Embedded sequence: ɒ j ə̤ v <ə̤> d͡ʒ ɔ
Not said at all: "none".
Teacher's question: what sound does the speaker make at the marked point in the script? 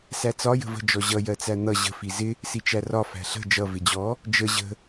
ə̤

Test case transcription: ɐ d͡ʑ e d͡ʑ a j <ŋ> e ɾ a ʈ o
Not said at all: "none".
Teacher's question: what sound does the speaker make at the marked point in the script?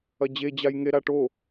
ŋ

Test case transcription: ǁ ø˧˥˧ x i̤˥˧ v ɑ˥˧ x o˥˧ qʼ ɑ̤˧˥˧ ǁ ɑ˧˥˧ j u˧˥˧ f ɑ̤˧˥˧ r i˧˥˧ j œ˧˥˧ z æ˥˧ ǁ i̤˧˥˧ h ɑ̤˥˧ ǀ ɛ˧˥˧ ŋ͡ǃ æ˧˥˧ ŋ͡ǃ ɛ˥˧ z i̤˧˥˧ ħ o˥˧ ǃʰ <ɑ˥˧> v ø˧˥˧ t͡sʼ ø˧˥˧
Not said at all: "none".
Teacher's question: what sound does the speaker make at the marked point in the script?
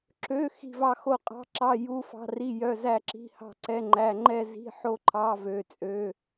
ɑ˧˥˧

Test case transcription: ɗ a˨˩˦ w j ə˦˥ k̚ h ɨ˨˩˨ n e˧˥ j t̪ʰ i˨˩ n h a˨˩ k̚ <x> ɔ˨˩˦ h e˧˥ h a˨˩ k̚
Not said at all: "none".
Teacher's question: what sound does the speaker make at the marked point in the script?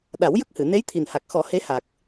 x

